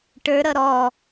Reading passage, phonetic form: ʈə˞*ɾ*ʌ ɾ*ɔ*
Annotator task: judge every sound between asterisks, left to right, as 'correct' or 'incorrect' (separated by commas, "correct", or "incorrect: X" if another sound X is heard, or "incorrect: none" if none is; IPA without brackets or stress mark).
correct, correct